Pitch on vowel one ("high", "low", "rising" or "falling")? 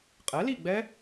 rising